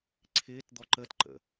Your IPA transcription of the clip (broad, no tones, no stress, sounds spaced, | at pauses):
ǀʰ ɪː t d̪ ɔ ǃ ə t ǃ ə̰